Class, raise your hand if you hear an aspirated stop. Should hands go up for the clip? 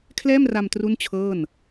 yes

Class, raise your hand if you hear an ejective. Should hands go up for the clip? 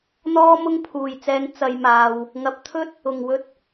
no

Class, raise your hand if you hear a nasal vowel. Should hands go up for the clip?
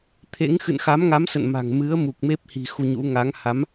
no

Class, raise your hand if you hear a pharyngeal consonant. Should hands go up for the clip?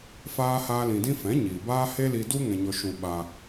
no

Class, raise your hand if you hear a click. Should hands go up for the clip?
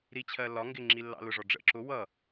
yes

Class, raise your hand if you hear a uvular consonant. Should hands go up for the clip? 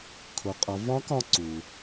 yes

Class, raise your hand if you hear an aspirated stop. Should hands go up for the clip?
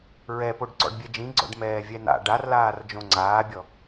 no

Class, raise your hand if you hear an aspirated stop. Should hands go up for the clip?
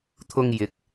yes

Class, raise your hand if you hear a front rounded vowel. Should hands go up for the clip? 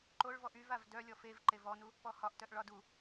yes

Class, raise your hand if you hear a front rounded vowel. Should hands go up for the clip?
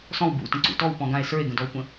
no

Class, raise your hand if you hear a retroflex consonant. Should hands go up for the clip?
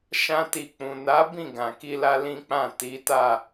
no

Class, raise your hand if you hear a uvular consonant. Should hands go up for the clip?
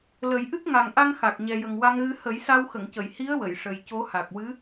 no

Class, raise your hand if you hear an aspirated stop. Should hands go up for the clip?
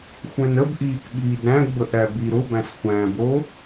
no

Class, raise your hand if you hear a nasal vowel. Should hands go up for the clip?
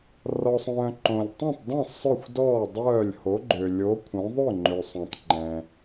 yes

